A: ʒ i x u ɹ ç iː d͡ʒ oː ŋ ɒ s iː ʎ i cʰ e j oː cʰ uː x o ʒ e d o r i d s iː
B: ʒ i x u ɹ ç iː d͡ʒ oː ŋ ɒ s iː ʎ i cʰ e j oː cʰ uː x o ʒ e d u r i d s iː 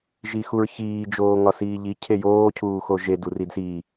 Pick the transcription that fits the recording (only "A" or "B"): B